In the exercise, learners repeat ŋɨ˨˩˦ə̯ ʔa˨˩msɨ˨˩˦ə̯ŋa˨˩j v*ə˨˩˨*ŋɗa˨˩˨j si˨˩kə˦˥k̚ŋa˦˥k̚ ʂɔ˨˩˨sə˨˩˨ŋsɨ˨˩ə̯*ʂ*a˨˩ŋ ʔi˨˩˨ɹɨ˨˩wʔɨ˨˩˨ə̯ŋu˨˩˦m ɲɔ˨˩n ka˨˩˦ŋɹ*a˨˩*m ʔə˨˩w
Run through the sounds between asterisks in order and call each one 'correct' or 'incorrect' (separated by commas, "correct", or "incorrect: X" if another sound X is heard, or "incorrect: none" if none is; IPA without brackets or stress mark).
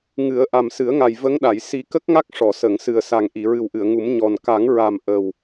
incorrect: ə˧˥, incorrect: s, correct